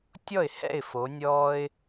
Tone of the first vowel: falling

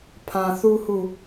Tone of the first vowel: low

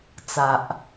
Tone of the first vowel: low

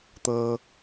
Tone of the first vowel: low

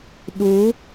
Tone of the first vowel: rising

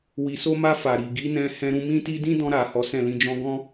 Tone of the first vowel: low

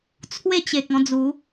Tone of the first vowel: falling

